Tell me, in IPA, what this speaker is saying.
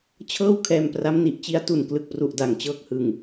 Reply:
t͡ɕʰ ɤː˥˩ w kʰ ɛː˧ m p r a˦˥ m n i˨˩ ʔ t͡ɕ i˦˥ a̯ t u˨˩ n k l ɯ˨˩ k̚ p r u˨˩ ʔ d a˨˩ ŋ t͡ɕ ɤː˦˥ k̚ h ɯ˨˩ ŋ

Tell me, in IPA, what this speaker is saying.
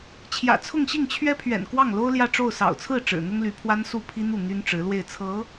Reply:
t͡ɕʰ j ä̰˨˩ t͡sʰ ʊ˥˧ ŋ ɕ i˥˩ ŋ t͡ɕʰ ɥ ɛ˥ pʰ ɥ ɛ̰˨˩ n k w ɑ˥˩ ŋ l o˥ ʊ̯ l j ä˥˧ ʈ͡ʂ o˥˩ ʊ̯ s ɑ̰˨˩ ʊ̯ t͡sʰ ɹ̩˥˩ ʈ͡ʂ ɻ̩˨˩ n̪ ʊ˥ ŋ l y˧˥ pʰ w a˥ n s u˥˩ pʰ i˥ n̪ u˥˩ n̪ y˥ n ʈ͡ʂ ɻ̩˧˥ l w e˥˩ ɪ̯ t͡sʰ ɤ˧˥

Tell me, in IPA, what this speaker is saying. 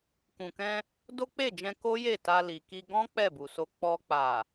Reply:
k ũ˨ k ɛ̃˧ | d o˦ k͡p e˦˨ d͡ʒ ɛ̃˧ k o˦ j e˦˨ t a˧ l i˨ k i˧ ɡ ɔ̃˦ k͡p ɛ˦˨ b u˨ s o˧ k͡p ɔ˧ k͡p a˨

